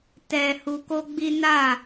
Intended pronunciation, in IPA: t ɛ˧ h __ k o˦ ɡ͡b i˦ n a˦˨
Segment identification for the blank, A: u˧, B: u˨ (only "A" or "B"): A